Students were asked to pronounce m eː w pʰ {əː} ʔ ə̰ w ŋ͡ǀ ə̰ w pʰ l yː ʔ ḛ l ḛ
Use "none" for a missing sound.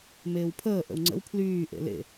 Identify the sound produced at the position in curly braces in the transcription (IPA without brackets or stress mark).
əː